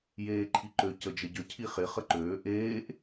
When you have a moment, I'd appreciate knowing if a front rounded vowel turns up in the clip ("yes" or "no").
yes